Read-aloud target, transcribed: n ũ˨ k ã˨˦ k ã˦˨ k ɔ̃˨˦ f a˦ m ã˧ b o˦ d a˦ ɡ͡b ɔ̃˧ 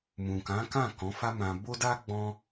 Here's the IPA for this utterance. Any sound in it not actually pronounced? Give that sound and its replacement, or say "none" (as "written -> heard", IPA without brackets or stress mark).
n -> m